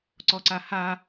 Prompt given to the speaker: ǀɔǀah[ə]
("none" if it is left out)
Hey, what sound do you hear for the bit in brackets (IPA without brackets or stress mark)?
a